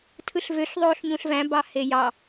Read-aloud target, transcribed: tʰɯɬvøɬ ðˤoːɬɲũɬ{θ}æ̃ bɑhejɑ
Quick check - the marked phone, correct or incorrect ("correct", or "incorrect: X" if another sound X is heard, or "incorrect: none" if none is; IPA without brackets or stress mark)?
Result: incorrect: v